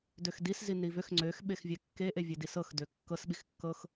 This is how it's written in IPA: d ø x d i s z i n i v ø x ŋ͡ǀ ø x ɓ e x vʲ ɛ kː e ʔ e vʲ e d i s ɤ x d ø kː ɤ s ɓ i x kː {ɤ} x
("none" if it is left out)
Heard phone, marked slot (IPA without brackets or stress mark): ɤ